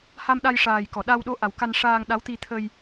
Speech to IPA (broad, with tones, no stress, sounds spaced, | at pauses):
h a˧ m ɗ a˧ j ʂ aː˨˩ j k ɔ˨˩˨ ɗ a˧ w ɗ o˧˥ ʔ a˨˩ w k a˧ n ʂ aː˧ ŋ ɗ a˧˥ w t̪ i˧ t̪ʰ ə˧ j